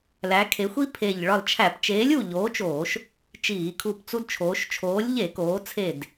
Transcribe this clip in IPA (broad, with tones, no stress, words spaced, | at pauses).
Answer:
læ˩˧kʰe˩˧xʷi˦ pʰe˧˩ʎ ɭɒ˧˩lt͡ʃʰæ˧˩˧pt͡ʃeː˨˥lʲ u˧˩ ʎoː˨˥t͡ʃoː˧˩˧ʃ | t͡ʃiː˧˩˧kʰu˧˩pt͡su˦d t͡ʃʰoː˩˧ʃt͡ʃʰoː˨˥lʲ ʎe˧˩˧koː˩˧t͡sʰe˧˩d